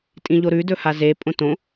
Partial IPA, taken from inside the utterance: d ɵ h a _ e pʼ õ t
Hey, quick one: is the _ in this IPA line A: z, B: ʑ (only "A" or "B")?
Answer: A